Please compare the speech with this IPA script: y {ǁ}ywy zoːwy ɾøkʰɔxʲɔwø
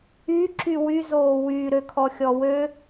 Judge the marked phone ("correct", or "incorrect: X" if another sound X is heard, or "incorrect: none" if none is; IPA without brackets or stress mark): correct